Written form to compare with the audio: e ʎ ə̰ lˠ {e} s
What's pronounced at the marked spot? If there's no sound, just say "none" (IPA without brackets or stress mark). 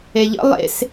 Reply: ḛ